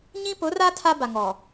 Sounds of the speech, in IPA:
ɲĩ˦pʊ˨˦ra˦ tʰa˦ba˨ŋɔ˨

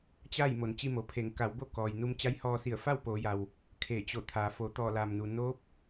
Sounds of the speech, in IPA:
t͡ɕa˥˨j mo˩˧nt͡ɕi˧mo˩pʰe˩˧ŋ ka˩˧wbo˥˨ kɔː˩j nu˧mt͡ɕa˧˥jhɔː˧si˧˩ə̯ fa˥˨wpoː˩˧ja˩w | kʰe˧˩t͡ɕo˧˩ t̪ʰaː˩fo˩˧ t̪ɔː˧˩laː˩mnu˩ noː˧˥p̚

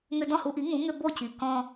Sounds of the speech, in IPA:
ŋʏ˧dɔ̃˥˩hu˧ʔi˩˥ ŋũ˩˥ ŋʏ˧bo˥˩ci˩ kɔ̃˧

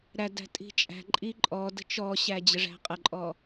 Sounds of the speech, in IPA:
ɾædæ̤ tʼi̤t͡ʃʼæ̤ǃʼi ǃʼɔ də̤t͡ʃɔɕæ d͡ʑəʐæ̤qʼəǃʼɔ

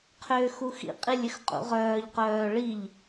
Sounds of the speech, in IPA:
qʰʏːxuxḭqʼilʲ ʏxqʼṵʁœːʎqœː ɭiʎ

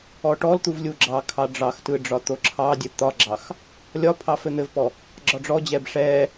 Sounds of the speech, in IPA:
ɔʈɔlt̪uv lʲuɡ͡ǁɑkʰɑ ɖ͡ʐɑxtɯ ɖ͡ʐɒt̪oǁʰɑdʲɘ t̪ɒɡ͡ǁɑx | lʲɒpʰɑ fɘn̪ɘvpɔ | ɡ͡ǁɒɖ͡ʐɔd͡ʑɛb ʂɛ

